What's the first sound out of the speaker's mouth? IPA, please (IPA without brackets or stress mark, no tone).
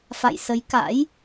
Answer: f